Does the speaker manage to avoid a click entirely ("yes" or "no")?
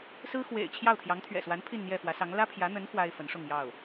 yes